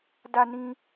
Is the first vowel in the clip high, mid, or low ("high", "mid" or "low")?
low